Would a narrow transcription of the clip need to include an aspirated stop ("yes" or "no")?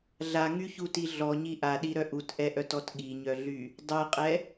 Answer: no